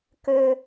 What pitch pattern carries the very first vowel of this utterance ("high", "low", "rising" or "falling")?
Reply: high